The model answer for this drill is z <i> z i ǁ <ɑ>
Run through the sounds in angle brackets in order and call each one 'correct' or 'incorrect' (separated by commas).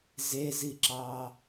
incorrect, correct